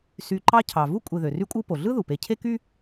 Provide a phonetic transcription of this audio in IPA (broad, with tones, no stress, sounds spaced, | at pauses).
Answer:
s y˨ ǃ ɑ˦ cʰ ɑ˩ v u˥ kʷʼ e˨ ð ø˩ r y˦ kʷʼ ɯ˦ p o˩ ɮ ɯ˥ ð u˩ p e˨ cʰ e˥ k y˥